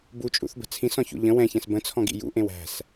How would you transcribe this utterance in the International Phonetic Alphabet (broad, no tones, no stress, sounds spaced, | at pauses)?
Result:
b u t͡ʃʼ ṵ θ b ə̤ t͡sʰ ĩ s ɔ̃ ç ṵ ʎ ə̃ w ɛ̃ ç ɛ̃ s b ə̃ t͡sʰ ɔ̃ ɡ ḭ j ṵ ʔ ẽ w æ̤ s